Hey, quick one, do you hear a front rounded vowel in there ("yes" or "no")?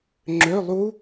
yes